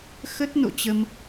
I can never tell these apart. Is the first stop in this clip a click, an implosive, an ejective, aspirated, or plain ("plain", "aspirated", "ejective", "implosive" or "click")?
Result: plain